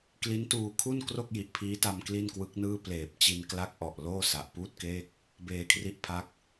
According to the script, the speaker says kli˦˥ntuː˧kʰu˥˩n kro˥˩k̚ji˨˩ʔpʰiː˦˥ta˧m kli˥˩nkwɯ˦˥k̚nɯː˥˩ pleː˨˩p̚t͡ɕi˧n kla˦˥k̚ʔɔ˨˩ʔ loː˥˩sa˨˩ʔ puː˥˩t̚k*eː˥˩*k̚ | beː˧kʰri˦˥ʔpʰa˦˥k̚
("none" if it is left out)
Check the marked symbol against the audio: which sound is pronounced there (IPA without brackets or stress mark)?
eː˥˩